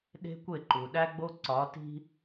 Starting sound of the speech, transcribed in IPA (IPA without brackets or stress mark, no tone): ɗ